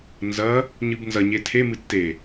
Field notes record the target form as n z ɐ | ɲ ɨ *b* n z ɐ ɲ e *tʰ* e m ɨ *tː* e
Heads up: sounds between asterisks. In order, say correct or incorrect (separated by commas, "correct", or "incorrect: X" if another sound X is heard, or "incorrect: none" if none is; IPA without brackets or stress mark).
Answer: correct, correct, correct